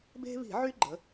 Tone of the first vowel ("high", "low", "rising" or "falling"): high